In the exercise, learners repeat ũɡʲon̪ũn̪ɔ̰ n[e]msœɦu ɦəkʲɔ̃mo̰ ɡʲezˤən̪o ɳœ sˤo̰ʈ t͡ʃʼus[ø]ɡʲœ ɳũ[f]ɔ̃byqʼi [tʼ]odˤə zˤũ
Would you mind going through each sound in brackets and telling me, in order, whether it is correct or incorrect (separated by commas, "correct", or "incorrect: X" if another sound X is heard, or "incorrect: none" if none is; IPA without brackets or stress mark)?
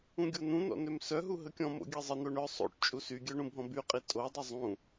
incorrect: ø, incorrect: y, incorrect: bʱ, correct